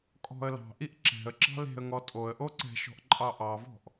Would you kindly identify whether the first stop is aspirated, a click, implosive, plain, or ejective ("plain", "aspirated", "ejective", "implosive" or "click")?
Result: ejective